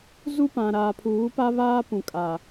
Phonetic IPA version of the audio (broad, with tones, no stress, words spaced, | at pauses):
zu˦pã˨ ɾaː˨pʰuː˨˦pa˦ βaː˦ pũ˨kʼa˨